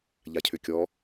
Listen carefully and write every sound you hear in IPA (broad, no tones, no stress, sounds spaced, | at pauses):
ʎ a cʰ ʏ kʲ ɔ